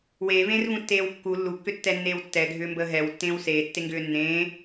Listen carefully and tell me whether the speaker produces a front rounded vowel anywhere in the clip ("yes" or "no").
yes